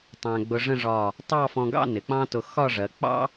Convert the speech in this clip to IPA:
tˤæ̃˧ɡ͡bʊ˧ʐə̃˥˧ʐɒ˧˩ | tˤɑ˥˧fɔ̃˧ɡɑ̰˥˧ nɪ˩˧k͡pɑ̃˥tʊ˧ xɒ˥˧ʐɜ˩˧ k͡pɑ̰˥

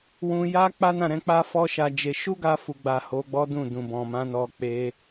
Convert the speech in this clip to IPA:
wũ˧ja˦ k͡pa˦nã˦˨ɾɛ̃˧k͡pa˦ fɔ˦ʃa˧d͡ʒe˧ ʃu˦ɡa˧fu˨ɡ͡ba˨ ho˨˦ɡ͡bɔ˦dũ˦˨ dũ˨bɔ̃˨mã˨˦nɔ˧ k͡pe˦

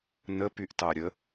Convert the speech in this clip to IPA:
nə pyʔtɑɾʲə

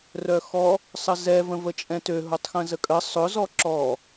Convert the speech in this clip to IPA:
rœxɔ | sˤəzɛ və̃vət͡ʃʼɛ̃tø ɦʊtˤxə̃zəkʼə sˤʊ zɔǁɔ

